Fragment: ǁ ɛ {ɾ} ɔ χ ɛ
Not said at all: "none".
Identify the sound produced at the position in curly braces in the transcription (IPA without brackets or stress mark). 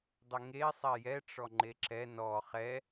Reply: n